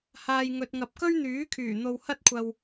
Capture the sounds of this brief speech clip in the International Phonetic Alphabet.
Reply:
h aː˨ j ŋ ɵ˨ t̚ ŋ ɐ˨ p̚ k ɵ˥ ɥ n̪ yː˨˥ kʰ yː˨˩ n̪ o˧ w h ɐ˥ t̚ kʷʰ ɐ˧ w

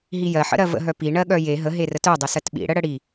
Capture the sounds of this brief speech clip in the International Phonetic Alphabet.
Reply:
ɦ i j ɜ ħ ə̰ ɾ ɜ v ə̰ ɦ œ p i ɳ ɜ ɠ œ j e ɦ ə ɦ e r ə t œ dˤ ɪ s ɜ t ɓ ḭ ɽ ə ɽ ə ɽ i

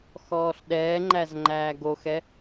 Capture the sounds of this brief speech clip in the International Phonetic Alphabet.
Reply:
x ɔː ɬ ɗ ɛː ŋ͡ǃ æ z ŋ͡ǃ æː ɡ o x ɛ

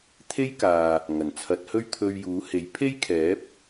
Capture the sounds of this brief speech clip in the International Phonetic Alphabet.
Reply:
t̪ʰ e˥ j k aː˨ | ŋ ɐ˨˩ n t͡sʰ ɐ˨˥ t̚ h ɵ˥ ɥ t̪ʰ ɵ˧ ɥ j uː˨˥ h e˨˥ j pʰ e˥ j kʰ ɛː˨˥ p̚

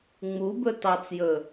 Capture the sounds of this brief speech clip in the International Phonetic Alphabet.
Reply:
ŋ͡m u b ɵ t ɑ t͡s j ɵ

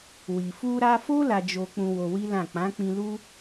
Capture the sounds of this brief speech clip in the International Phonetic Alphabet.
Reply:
w i˨ f u˧ ɾ a˧ f o˦ l a˧ d͡ʒ o˧ k͡p ũ˧ w o˧ w i˦ l ã˦˨ k͡p ã˨˦ k͡p ĩ˧ l u˦

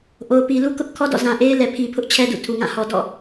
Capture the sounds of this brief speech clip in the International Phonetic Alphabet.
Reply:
ʔ o˨ ʊ̯ p i˨ l u˦ k ʊ˦ ʔ kʰ ɔ˦ d ɔ̰˦˨ z ã˨ ʔ e˦ ɪ̯ l ɛ˨ pʰ i˨ pʰ ʊ˦ ʔ t͡ɕʰ ɛ˦ d ṵ˦˨ tʰ u˨ ŋ ã˦˨ h ɔ˨ d ɔ̰˦˨

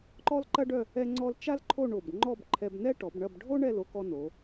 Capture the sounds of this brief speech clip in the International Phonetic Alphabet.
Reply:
ǃ ɔ˥ l ǃ ɐ˥ ɖ œ˥˧ | ɛ˥ ŋ͡ǀ ɔ˥ l t͡ʃ a˥ l ǃʰ o˥˧ ɳ o˧˩ b ŋ͡ǃ ɔ˥˧ b ǃʰ ɛ˧ b n ɛ˥ ʈ ɔ˩˧ b ɳ ɐ˥˧ b ɖʱ o˥ ɳ ɛ˥˧ l o˥ k ɔ˧ n o˩˧

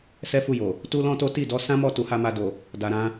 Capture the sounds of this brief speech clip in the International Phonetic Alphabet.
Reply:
s ɛ˦ f u˦˨ j o˨ | t u˦ l ɔ̃˦ t o˦ t i˦˨ d ɔ˧ s ã˦ m ɔ˦˨ t u˨˦ h a˦ m a˧ d o˨ | d a˨ ɾ ã˧

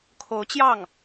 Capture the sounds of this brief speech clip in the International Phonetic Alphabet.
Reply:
kʰ o˧˥ ʊ̯ t͡ɕ j ɑ˥˩ ŋ

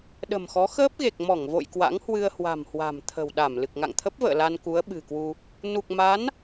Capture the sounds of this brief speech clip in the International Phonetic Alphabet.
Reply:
ɗ ə̤˨˩ m x ɔ˨˦ x əː˦˥ p̚ ɣ e˨˩ k̚ m ɔ˧˩ ŋ v o̰˧˨ j k w a̰˧˥ ŋ h w ɨ˧ ə̯ h w a̤˨˩ m h w a̤˨˩ m t̪ʰ ə̤˨˩ w ɗ a˧˩ m l ɨ˨˩ k̚ ŋ a̰˧˨ ŋ t̪ʰ ə˦˥ p̚ v ə̰ː˧˨ l a˧ n k u˨˦ ə̯ ɓ ɨ̤˨˩ k w u˧ | n u˨˩ k̚ m a˨˦ n

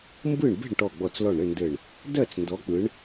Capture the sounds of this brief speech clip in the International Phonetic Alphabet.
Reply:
m b ɯ˥˨ ɳ b e̤˥˨ ɳ ʈ ɔ˧˩ ɡ͡b ɔ˧˩ t͡s l ɔ˧˩ ɳ ɾ ɘ˥˨ n d ɘ˧˩ ɳ | d ɜ˥˨ t͡s n d ɔ˨˦ k͡p ɯ˨˦ ɳ

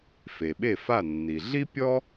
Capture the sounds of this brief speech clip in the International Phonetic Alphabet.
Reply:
f e˩ ɓ e˥˩ f a˥˩ nː i˩ ɮ i˥ pʲ ɔ˥

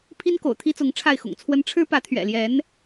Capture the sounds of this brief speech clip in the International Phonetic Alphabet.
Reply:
pʰ i˥ n k o̰˨˩ ʊ̯ t̪ʰ i˥ t͡s ʊ˧˥ ŋ ʈ͡ʂʰ a˥˩ ɪ̯ x ʊ̰˨˩ ŋ t͡sʰ w ə˥ n ʈ͡ʂʰ ɻ̩˥ p ä˧˥ t̪ʰ ɥ ɛ̰˨˩ l j ɛ˧˥ n

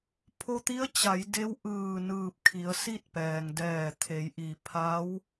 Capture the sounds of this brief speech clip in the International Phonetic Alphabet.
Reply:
pʰ o˧ t̪ i˧˥ ə̯ t͡ɕ a˩˧ j d e˧˥ w ʔ ɯː˧˩ n ɯː˧˩ p̚ kʰ i˩˧ ə̯ s i˥˨ t̚ p ɛː˩ ŋ d ɛː˧˩ t̪ʰ e˩˧ j ʔ i˩ pʰ a˧˥ w

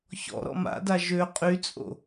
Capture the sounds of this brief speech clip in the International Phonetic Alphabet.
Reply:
ç ɔ̰ ɾ ɔ̰ m a̰ d a ʒ ø qʼ y t͡sʼ o̰

